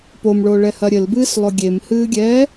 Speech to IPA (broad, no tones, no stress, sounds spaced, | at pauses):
p o m ɭ o ɭ ɛ h ɐ ɾʲ ɘ l b ɨː s lˠ o ɡʲ e m h ɨː ɡʲ ɛː